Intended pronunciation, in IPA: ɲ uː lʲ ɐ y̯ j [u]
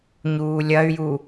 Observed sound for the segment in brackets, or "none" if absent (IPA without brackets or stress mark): u